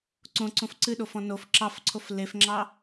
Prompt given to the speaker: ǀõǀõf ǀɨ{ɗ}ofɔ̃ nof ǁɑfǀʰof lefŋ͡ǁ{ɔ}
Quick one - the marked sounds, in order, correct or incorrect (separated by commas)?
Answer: correct, incorrect